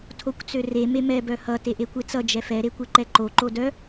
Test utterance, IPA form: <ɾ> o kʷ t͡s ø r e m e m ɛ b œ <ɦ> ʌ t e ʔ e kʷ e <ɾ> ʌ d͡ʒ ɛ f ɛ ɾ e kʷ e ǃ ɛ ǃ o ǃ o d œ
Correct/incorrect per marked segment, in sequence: incorrect: tʰ, incorrect: h, incorrect: t͡s

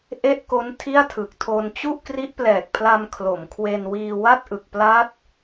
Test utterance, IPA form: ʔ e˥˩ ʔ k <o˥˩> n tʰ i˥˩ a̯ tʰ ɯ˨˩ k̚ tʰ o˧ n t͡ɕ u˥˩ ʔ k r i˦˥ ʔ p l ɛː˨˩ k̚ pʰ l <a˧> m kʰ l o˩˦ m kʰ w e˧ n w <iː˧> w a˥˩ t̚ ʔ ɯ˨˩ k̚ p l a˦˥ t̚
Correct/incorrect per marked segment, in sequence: incorrect: o˦˥, correct, correct

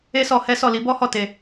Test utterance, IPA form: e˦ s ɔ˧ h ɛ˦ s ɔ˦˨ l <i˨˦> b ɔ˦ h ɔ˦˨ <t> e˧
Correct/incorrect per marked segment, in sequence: correct, correct

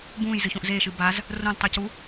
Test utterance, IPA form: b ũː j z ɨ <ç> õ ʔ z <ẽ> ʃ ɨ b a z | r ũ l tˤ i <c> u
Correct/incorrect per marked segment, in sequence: correct, incorrect: e, correct

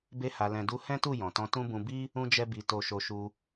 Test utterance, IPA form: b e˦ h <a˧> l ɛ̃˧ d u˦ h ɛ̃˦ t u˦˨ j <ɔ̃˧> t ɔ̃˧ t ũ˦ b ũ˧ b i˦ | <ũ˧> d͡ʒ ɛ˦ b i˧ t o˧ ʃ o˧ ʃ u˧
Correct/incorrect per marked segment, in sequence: correct, incorrect: ɔ̃˨, incorrect: ũ˦

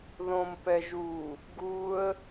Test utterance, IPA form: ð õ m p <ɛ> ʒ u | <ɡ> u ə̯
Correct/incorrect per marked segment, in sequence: correct, correct

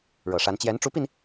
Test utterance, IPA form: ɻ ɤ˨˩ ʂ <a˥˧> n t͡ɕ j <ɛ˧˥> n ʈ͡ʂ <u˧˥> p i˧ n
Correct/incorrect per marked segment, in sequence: incorrect: a˧˥, correct, correct

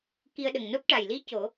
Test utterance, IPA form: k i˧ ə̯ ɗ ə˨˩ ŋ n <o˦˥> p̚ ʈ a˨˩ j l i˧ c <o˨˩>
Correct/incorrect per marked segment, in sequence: correct, incorrect: o˨˩˦

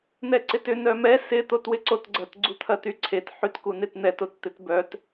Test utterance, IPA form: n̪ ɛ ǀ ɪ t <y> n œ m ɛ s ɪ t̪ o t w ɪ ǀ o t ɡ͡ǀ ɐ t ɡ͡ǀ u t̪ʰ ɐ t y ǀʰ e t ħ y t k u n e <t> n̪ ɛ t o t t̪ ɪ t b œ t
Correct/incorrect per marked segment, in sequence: incorrect: ʏ, correct

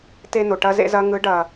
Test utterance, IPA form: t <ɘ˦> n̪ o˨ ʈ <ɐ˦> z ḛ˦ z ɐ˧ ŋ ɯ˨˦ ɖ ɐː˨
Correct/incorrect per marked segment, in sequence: incorrect: e˦, correct

